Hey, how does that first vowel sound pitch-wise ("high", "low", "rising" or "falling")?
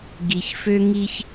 low